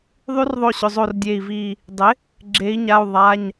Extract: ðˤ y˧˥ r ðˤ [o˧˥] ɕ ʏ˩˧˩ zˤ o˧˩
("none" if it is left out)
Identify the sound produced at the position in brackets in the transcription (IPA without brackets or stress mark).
o˧˩